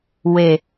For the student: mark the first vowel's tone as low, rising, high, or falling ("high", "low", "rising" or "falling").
low